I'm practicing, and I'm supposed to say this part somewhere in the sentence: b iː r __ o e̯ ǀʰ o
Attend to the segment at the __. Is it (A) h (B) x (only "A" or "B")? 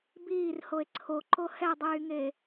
A